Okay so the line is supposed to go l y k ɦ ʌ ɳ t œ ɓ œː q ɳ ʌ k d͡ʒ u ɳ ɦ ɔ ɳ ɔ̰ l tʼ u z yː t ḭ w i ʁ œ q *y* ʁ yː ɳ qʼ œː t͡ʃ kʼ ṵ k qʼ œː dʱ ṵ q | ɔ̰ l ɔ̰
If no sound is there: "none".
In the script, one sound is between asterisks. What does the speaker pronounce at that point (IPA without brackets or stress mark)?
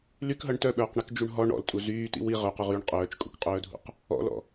u